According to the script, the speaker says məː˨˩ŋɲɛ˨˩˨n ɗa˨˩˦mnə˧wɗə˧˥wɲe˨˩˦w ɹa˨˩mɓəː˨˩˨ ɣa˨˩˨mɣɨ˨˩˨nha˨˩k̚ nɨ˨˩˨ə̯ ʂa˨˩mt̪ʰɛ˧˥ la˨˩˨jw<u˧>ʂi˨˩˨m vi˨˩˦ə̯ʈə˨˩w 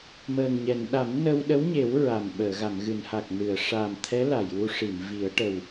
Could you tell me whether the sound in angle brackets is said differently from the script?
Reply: no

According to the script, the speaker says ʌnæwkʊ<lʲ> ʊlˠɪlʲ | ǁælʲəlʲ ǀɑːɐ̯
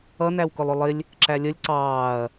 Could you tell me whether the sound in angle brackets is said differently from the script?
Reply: yes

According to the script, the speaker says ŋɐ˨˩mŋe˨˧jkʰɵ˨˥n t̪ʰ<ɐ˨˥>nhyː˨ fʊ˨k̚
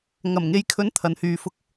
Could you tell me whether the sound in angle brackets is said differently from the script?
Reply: yes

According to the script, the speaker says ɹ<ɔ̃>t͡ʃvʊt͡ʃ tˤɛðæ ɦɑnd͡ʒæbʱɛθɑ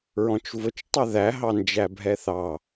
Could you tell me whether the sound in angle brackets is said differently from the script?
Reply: no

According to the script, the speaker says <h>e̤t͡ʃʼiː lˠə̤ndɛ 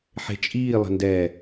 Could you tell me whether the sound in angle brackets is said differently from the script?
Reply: yes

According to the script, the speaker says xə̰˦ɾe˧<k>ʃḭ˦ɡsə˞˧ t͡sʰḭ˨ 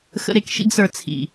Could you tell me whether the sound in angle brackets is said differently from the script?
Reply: no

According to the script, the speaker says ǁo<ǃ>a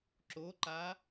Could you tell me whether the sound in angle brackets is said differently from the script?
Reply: no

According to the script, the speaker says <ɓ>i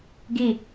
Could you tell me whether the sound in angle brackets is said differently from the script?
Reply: yes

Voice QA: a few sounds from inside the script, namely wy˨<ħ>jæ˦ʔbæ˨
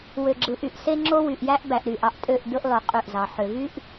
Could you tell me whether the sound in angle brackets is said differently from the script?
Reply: yes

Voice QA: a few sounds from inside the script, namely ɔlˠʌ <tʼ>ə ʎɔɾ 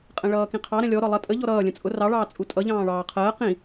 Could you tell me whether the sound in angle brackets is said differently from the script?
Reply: no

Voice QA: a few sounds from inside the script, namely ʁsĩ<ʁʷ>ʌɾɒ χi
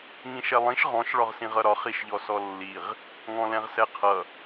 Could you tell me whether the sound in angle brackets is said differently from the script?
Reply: yes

